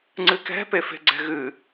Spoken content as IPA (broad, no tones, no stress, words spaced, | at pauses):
ŋ͡ǀɨkɛ̤pe fe̤ɡ͡ǀɛ̤ɣɨ